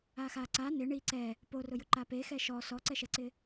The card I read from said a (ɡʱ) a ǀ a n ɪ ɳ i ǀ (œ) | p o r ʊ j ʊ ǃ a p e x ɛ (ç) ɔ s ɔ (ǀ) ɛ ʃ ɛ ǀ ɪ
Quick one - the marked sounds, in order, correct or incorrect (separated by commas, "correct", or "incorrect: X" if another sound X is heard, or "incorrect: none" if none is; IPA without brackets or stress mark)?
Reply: incorrect: x, incorrect: ɛ, incorrect: ʃ, correct